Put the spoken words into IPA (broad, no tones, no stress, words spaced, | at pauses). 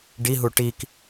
ɖiɦu ʈik